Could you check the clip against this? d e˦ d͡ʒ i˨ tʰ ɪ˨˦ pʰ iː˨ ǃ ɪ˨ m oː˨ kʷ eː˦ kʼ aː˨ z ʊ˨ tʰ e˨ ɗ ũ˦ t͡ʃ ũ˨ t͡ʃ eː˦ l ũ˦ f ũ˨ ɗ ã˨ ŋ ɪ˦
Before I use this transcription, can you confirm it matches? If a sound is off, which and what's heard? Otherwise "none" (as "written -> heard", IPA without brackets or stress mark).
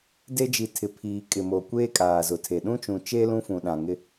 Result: ǃ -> kʼ